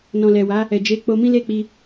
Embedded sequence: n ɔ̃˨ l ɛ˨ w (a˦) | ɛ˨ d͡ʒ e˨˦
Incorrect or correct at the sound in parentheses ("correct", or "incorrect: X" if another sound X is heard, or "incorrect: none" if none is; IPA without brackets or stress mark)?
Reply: incorrect: a˨˦